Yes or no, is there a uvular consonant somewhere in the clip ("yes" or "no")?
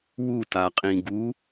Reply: yes